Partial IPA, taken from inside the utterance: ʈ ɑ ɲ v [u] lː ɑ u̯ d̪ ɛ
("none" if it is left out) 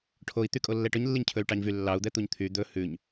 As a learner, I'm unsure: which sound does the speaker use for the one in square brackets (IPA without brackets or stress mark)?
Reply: y